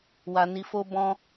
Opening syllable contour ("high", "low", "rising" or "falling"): low